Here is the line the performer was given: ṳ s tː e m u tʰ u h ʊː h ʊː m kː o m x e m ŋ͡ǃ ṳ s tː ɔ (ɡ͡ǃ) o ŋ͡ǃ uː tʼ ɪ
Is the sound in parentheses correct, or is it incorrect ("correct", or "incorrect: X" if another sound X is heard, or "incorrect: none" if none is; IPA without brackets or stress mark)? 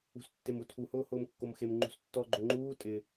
correct